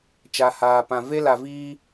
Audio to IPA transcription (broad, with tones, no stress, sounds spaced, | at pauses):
t͡ʃ a˨ h aː˨ p ã˨ v e˦ l a˨ v iː˦